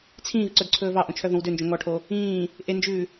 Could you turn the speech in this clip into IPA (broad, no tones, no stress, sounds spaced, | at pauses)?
t͡sʰ ĩː v ǀ œ d ǀʰ ɵː v ɑ ʔ õ t͡ʃʰ œ v õ w d ø n d͡ʒ õ ŋ ɔ ʈʰ o | ĩː | ʔ e n d͡ʒ ʉː